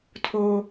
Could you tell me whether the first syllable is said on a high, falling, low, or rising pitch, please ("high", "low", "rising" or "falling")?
high